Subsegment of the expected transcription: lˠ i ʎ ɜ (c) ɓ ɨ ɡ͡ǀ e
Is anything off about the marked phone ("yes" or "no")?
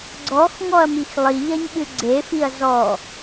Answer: yes